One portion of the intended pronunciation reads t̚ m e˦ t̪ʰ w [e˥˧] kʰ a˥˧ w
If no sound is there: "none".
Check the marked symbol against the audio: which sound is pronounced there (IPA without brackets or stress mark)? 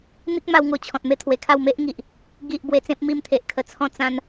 e˨˩